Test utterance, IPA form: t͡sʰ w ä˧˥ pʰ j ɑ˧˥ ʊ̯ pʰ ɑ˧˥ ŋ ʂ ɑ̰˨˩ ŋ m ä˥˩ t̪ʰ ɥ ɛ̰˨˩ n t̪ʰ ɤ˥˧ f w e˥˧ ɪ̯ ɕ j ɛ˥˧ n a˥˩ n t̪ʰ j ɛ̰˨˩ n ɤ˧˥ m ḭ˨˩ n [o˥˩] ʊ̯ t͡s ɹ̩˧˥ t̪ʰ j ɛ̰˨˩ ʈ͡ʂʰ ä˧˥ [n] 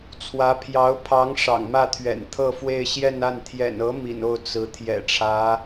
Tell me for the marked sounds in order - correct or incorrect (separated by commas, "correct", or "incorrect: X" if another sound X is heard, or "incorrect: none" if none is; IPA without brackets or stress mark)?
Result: correct, incorrect: none